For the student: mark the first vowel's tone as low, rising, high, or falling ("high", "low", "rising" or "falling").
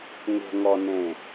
low